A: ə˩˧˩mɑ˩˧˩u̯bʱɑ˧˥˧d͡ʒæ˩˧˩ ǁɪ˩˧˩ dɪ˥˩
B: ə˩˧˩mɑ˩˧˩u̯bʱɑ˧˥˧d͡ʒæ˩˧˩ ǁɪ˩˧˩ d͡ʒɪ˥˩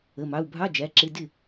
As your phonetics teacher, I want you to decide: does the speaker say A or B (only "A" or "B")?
A